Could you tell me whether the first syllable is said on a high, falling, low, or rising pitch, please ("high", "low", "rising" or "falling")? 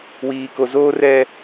low